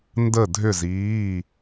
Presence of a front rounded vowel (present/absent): present